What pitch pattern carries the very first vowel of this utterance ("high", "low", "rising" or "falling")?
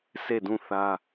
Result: falling